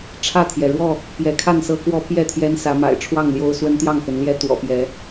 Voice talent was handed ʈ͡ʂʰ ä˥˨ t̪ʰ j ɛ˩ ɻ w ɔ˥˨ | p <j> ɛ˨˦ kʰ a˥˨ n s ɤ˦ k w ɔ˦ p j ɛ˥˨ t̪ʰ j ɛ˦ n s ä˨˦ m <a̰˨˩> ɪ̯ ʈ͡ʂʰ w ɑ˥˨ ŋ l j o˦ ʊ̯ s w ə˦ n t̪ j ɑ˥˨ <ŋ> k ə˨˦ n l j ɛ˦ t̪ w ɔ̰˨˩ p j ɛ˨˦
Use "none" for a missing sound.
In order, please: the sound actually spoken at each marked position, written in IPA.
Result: j, a̰˨˩, ŋ

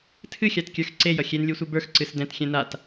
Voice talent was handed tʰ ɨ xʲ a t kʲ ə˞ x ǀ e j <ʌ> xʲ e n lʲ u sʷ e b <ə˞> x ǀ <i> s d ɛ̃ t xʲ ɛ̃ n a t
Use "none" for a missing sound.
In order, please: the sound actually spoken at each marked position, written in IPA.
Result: ʌ, ə˞, ɨ

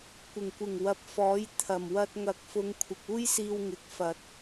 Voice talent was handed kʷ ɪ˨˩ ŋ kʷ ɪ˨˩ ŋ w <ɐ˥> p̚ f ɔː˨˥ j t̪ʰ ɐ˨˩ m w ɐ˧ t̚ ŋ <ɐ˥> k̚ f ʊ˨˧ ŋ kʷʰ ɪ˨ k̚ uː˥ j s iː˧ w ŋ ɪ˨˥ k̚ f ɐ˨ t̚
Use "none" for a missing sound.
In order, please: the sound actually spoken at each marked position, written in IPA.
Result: ɐ˨, ɐ˨

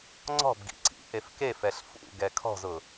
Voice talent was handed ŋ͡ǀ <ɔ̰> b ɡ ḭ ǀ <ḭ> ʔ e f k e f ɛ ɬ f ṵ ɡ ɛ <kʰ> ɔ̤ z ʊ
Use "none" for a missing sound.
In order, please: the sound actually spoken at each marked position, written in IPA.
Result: ɔ̤, ḭ, kʰ

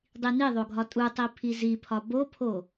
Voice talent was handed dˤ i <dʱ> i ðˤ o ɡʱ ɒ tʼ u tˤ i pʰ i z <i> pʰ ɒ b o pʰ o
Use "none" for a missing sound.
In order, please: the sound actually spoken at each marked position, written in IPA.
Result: n, i

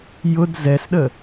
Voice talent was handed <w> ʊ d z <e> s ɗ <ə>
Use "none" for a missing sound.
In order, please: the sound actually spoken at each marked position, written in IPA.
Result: j, ɛ, ə

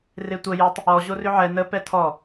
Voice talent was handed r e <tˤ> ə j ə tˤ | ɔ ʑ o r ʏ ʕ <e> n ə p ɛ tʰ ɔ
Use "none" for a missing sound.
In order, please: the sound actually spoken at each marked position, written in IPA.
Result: tʷ, ɛ

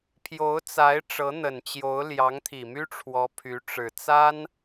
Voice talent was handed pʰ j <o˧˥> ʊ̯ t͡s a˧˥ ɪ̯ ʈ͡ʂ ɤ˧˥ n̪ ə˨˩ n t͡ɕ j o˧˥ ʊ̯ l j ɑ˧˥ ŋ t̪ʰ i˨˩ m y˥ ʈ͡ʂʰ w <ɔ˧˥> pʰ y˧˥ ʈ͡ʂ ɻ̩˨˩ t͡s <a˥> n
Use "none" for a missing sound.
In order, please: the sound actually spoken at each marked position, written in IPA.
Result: o˧˥, ɔ˧˥, a˥

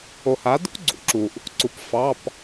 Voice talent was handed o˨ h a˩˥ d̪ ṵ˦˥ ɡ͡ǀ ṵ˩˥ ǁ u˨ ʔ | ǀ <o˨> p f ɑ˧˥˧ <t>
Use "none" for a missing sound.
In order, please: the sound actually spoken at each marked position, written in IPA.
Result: u˨, p

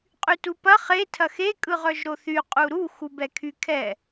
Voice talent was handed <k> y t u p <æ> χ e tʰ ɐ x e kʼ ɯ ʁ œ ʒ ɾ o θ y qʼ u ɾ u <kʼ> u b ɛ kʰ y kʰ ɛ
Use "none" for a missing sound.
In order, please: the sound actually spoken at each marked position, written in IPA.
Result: qʼ, ɐ, x

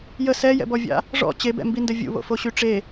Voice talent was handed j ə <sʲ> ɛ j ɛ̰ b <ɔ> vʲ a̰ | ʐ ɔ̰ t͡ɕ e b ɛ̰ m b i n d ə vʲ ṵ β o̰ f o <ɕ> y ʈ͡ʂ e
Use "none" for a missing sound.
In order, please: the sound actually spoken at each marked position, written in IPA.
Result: s, ɔ, ɕ

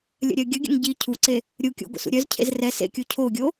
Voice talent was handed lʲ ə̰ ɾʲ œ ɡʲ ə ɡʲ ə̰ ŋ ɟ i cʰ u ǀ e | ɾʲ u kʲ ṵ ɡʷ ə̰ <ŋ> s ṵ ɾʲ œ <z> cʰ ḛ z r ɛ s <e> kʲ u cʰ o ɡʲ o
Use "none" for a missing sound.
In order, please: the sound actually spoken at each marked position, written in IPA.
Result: none, z, ḛ

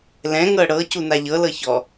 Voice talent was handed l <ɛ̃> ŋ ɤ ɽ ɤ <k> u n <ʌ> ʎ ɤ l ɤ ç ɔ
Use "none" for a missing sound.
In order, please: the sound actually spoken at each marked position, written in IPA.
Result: ɛ̃, c, a

